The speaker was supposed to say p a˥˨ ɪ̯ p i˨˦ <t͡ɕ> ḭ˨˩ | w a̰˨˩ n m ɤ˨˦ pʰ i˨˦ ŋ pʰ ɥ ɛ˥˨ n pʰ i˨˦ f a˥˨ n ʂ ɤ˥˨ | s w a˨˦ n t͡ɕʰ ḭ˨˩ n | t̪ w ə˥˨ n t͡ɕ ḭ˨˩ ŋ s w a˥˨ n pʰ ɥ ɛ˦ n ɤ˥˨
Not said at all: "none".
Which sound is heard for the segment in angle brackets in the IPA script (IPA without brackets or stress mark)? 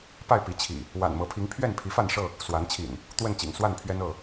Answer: t͡ɕʰ